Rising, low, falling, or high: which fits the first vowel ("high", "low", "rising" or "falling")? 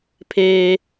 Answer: low